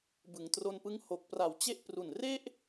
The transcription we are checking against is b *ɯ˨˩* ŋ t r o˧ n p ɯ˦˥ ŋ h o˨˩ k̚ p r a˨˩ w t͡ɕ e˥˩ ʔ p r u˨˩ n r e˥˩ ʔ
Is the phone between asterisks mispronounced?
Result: yes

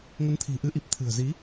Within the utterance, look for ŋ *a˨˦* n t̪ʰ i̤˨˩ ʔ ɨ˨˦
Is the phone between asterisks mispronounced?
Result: yes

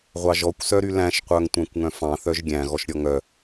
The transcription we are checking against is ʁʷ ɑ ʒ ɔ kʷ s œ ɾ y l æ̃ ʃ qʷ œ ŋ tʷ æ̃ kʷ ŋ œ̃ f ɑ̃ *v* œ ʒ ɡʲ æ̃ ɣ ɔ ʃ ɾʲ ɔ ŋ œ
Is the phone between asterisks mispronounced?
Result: yes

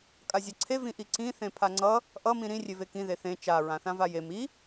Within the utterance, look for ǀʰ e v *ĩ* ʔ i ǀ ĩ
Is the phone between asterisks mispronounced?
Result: no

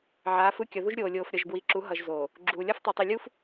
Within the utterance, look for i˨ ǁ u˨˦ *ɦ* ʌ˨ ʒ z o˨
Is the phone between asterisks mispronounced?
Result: no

